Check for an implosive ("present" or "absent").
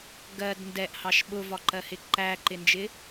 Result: present